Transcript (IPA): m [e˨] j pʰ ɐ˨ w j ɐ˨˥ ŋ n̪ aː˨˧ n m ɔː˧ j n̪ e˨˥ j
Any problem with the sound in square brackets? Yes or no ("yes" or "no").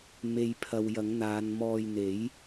no